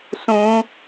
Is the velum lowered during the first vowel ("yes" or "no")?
yes